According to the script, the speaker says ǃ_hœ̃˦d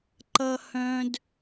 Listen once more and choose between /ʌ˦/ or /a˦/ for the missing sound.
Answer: ʌ˦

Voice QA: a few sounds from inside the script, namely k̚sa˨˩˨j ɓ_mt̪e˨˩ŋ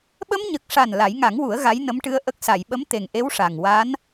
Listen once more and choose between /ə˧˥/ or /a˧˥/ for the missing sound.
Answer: ə˧˥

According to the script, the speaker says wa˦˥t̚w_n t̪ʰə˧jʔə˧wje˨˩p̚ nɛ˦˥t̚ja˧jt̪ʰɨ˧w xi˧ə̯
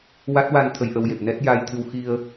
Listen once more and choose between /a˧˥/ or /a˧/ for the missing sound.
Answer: a˧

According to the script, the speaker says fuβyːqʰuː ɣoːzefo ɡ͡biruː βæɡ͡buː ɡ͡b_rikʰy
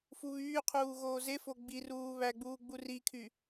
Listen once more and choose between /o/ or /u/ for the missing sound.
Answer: u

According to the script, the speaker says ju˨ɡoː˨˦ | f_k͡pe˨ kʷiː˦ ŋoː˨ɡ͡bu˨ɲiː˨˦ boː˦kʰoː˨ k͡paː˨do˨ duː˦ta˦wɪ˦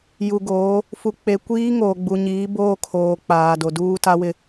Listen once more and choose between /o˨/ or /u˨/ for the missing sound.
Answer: u˨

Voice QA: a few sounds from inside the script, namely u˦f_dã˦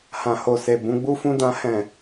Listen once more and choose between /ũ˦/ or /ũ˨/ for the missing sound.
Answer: ũ˦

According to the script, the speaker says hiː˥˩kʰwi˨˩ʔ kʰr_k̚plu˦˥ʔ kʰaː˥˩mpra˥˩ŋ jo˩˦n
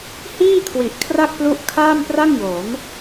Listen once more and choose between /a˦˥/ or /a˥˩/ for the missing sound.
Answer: a˥˩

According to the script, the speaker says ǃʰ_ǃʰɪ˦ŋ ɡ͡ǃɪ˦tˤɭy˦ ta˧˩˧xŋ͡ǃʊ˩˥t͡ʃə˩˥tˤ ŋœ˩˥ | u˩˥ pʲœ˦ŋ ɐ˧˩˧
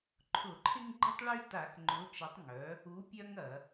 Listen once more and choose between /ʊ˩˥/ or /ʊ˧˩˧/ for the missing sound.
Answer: ʊ˧˩˧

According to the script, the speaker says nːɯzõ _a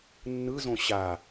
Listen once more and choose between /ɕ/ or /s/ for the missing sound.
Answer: ɕ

